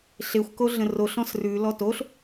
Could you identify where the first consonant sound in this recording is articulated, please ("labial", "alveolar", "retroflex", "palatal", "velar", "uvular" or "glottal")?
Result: alveolar